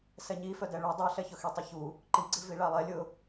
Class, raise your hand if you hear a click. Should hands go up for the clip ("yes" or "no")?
yes